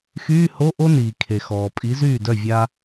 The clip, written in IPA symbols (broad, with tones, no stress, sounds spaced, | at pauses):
x yː˧˥˧ h o˧˥˧ ʔ o˥ n iː˩ kʰ e˩ x ɔː˩ pʼ i˨˥ z yː˥˩ d œ˥˩ vʲ a˥